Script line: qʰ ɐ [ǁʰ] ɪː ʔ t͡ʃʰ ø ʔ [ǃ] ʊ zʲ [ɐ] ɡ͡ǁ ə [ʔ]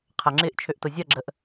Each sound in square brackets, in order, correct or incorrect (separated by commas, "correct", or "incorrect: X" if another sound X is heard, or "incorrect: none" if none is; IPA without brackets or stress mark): incorrect: ŋ͡ǁ, incorrect: t, correct, correct